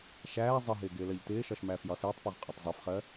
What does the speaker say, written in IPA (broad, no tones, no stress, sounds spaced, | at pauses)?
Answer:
ʃ æː zˤ ə ɦ ɪː ɡ ɪː l ɜ ʎ t ɪː ʃ ɒ ʃ m æː f j ɒ s ɪː tˤ p ɔ ʁ qʼ ɒ tˤ zˤ ɛ f χ ɜ